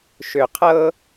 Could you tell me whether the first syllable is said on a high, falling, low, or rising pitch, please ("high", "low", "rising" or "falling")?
low